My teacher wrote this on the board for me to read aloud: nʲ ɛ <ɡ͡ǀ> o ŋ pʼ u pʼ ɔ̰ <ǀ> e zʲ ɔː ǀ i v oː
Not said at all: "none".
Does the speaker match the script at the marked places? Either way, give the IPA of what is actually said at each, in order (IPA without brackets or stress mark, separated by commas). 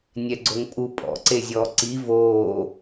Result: ɡ͡ǀ, ǀ